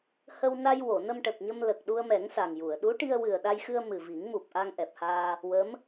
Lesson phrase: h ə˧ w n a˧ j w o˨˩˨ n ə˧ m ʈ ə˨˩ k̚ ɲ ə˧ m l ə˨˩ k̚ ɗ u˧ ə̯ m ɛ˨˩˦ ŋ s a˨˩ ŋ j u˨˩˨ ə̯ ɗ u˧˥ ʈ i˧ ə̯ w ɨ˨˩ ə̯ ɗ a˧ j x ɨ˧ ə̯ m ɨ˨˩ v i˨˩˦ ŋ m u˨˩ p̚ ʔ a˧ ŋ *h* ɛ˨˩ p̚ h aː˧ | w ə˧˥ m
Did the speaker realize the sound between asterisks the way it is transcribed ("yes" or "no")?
no